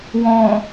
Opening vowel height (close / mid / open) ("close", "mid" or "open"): mid